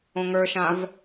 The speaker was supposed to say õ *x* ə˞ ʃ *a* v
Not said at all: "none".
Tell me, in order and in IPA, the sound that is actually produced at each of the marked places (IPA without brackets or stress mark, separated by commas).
ŋ, ã